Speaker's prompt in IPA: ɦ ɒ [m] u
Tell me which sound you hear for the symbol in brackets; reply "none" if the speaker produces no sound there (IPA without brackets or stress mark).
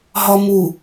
m